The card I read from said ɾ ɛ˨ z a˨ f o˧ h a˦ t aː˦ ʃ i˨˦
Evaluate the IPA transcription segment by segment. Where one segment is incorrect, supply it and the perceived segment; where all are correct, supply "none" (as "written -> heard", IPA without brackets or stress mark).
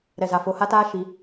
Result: none